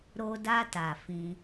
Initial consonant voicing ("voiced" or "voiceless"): voiced